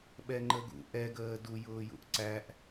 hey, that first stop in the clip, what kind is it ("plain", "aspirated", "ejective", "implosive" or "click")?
implosive